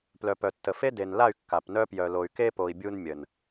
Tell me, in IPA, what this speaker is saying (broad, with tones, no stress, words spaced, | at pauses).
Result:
plœ˨pœ˨tːə˨ fe˦ de˨nla˦˨y̯ kːa˨pnœ˦pjœ˨ lo˨y̯ke˦po˨i̯ bʲu˦nmʲə˨n